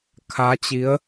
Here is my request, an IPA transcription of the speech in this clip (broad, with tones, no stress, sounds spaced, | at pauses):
kʰ a˧˥ t͡ɕ i˧˥ ə̯